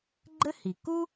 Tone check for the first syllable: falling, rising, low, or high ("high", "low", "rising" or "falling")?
high